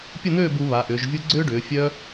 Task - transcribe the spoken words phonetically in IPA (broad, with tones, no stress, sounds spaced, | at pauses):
pʲ ə˥˧ n̪ øː˥˧ b u˩˧ β a˩˧ ʔ ʏː˩˧ ʒ vʲ u˥ ɡ͡ǀ ʏː˥ ɖ ʏː˩˧ fʲ œ˥